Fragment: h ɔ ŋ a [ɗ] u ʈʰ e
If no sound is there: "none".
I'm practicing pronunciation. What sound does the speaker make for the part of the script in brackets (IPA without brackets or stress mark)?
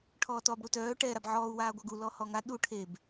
ɗ